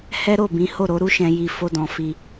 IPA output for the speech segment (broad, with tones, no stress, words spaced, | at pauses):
hɛ˦ɾo˦˨bĩ˨˦ ho˦˨ɾo˨˦ɾu˦ʃɛ̃˧ ji˧ fo˦dɔ̃˧fi˧